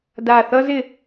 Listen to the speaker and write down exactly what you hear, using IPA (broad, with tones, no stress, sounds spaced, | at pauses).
d a˧˩ θ ʌ˥ z ɪ˧